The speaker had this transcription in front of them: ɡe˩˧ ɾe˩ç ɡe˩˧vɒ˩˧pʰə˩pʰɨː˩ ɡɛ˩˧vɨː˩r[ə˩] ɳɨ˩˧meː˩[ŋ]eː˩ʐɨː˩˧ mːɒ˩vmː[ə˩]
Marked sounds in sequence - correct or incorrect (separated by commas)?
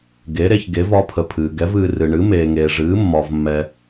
incorrect, correct, incorrect